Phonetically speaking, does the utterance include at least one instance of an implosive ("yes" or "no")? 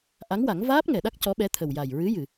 yes